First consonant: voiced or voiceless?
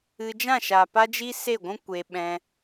voiced